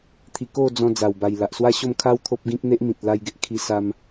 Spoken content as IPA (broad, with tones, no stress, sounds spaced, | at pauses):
t̪ʰ i˧ k o˥˧ d͡z ɔ̃˧ d͡z a˨˩ w b a˨˩ j l a˨ ʔ s w a˦ ɕ o˥˧ m kʰ a˦ w t̪ʰ o˦ p̚ ɡ ĩ˦ k̚ n̪ e˦ ʔ m ĩ˨ t̚ l a˧ j ɡ e˨ ʔ kʰ i˧ s a˧ m